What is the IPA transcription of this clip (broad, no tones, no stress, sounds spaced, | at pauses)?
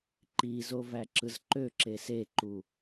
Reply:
ǃ i z o v æ ǁ ɯ z ǃ ø ǁ e s e ǃ u